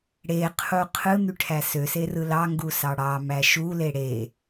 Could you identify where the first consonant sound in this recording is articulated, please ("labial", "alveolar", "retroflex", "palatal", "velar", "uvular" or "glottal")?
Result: retroflex